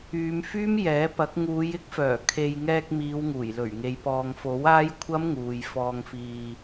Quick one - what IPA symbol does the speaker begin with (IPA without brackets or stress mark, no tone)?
yː